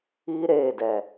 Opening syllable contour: high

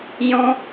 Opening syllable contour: high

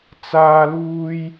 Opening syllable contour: high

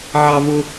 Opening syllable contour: high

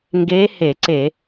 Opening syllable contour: rising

